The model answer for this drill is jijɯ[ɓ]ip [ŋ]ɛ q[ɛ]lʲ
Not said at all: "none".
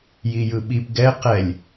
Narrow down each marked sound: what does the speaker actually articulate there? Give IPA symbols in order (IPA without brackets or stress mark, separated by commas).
ɓ, ɡ, ɛ